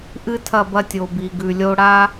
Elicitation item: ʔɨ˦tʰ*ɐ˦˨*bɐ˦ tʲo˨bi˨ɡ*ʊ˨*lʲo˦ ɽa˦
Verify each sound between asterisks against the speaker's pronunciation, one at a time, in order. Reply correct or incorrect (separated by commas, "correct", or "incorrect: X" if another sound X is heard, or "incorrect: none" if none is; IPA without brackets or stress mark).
correct, incorrect: ʉ˨